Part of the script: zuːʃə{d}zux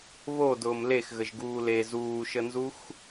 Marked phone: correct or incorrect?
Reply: incorrect